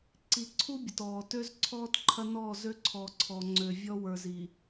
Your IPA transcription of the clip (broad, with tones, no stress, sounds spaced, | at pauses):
ǀ i˨ ǀʰ u˦ bʲ ə˨ t ɔː˨ t ø˦ z ǀʰ ɔː˦ t ǃʰ ɐ˦ n ɔː˦˨ z ø˦ ǀʰ ɔː˨ ǀʰ ɔ˨ ŋ͡ǀ ø˨ vʲ ɔ˦ w ə˞˨ z i˨